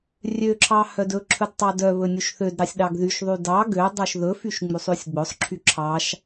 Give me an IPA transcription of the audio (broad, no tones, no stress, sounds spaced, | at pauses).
rʲ ø ǁʰ ɑ h œ d ɵ ǁʰ ɵ d tˤ ɑ d œ β ɵ nʲ u ʃ θ ø d ɾ ɑ sʲ ɗ ɑ ɡ ð y ʃ ðˤ y d ɑ ɡ ø dˤ œ ʃ ð ɵ f y ʃ ŋ͡m y sˤ ʉ sʲ ɡ͡b ɵ sˤ ǁʰ y ǁʰ ɑ ʃ